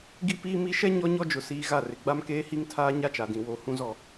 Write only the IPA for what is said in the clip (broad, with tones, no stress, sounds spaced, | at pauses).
ɡ i˦ p iː˦ m i˦ ʃ ɛ˦ ɲ ɔ˦ ɲ ɔ˦ d͡ʒ ʊ˨ s iː˨ ɣ a˦˨ r ɪ˨ ɡ͡b a˦ m k eː˦ h i˦ ŋ tʰ aː˦ ɲ a˦ t͡ʃ a˨ d ĩ˨ w o˨˦ h ũ˦ z ɔ˦˨